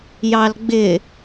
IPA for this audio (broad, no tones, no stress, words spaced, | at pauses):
jɑlɡ͡bɪ